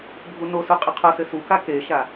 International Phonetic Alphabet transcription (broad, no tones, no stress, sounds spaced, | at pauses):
bʱ u n o s u qʼ ɘ qʰ o s ɘ s u k a k e ʃ a